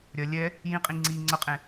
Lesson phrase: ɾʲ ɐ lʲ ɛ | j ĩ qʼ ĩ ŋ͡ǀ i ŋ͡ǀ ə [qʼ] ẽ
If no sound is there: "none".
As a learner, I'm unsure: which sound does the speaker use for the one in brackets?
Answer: qʼ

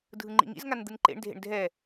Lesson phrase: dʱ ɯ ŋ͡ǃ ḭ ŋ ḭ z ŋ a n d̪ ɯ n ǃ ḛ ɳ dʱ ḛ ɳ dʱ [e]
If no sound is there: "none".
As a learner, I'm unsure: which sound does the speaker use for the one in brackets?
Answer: ɛ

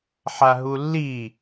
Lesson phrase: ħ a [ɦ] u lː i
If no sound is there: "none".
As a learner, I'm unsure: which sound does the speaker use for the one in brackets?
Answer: ɦ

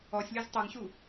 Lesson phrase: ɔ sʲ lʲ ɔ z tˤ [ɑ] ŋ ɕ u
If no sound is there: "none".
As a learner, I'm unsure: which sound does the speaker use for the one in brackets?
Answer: ɑ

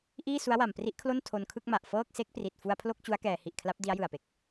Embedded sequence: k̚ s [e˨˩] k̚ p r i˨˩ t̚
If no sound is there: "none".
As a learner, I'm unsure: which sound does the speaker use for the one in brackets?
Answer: e˦˥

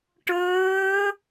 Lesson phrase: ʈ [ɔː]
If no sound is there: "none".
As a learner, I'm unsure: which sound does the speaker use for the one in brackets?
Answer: ɵː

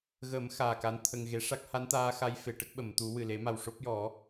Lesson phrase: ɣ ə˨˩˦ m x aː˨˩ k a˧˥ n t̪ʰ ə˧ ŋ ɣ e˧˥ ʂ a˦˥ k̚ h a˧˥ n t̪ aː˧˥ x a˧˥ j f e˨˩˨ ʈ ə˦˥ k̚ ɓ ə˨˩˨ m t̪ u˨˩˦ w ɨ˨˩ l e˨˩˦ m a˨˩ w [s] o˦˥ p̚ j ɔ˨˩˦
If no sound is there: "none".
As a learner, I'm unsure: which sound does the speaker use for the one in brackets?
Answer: ʂ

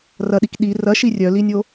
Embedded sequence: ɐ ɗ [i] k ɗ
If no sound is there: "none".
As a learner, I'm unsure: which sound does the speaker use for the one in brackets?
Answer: i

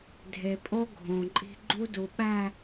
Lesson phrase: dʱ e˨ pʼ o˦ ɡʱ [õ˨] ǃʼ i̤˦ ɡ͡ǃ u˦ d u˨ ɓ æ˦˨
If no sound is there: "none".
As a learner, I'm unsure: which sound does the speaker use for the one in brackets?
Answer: õ˨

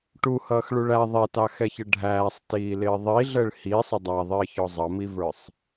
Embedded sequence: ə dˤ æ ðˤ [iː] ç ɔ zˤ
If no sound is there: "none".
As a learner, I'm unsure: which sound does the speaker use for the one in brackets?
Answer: ɪː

